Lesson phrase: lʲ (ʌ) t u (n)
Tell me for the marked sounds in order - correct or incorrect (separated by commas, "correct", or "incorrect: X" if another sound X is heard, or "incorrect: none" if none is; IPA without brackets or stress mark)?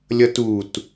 correct, incorrect: t